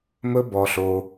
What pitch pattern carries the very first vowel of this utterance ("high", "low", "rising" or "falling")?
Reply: high